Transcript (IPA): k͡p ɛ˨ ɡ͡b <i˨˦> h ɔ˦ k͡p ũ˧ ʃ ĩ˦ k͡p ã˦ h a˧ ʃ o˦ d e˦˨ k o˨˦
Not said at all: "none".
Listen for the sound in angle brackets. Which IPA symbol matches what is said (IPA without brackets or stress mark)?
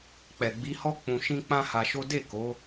i˨˦